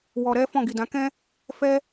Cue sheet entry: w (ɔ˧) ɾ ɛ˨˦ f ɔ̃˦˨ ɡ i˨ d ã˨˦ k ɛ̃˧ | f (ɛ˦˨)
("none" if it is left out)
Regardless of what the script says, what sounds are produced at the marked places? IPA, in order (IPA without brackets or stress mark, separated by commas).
ɔ˨, ɛ˧